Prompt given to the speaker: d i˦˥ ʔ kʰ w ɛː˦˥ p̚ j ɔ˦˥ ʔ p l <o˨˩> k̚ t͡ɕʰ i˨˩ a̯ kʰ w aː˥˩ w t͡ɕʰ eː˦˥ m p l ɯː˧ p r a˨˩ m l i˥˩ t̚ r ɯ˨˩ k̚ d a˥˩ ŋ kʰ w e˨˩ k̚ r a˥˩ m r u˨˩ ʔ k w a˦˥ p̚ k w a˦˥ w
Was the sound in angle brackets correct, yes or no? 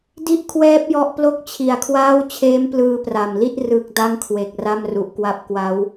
no